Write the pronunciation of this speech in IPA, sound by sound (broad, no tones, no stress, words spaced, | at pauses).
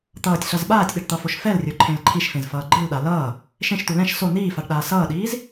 t̪ʌːtʲɬʌz ɓaːtʲɗɛɖt̪ʌfoʃ fɛlrʲoǃʰẽl ǃʰiʃfẽzfʌː ɡ͡ǃɯlɗa lʌː | ʃẽʃt̪u lɛ̃ʃ so n̪iːfaɖɗaː sʌːɗiːz